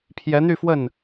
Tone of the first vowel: rising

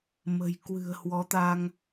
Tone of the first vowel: low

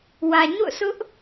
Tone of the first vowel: low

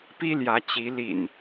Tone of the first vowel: high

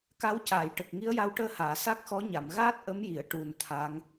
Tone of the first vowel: rising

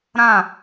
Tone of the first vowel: falling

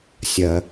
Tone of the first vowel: low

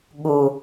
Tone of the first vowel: low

